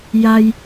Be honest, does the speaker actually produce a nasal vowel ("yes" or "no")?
no